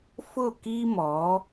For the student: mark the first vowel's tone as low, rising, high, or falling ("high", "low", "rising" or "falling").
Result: falling